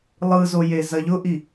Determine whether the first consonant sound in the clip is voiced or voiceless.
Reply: voiced